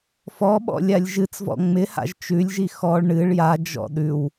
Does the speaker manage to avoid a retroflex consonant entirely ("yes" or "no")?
no